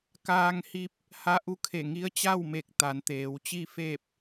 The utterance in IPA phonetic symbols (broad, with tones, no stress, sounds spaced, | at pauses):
k aː˧ ŋ h i˧ p̚ | h a˧˥ ʔ u˧˥ kʰ e˧˩ ŋ i˧˥ ə̯ t͡ɕ a˥˨ w m e˧˩ k̚ t̪ a˩˧ n t̪ eː˩˧ w t͡ɕ i˥˨ f e˥˨ p̚